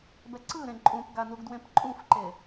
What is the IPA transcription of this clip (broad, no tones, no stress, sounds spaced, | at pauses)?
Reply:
b ɛ ǀ ɯ ɾ ẽ ǃʼ ũ p ɡ a n u ɡ d w ẽ p ǃʼ ũ f ǃ e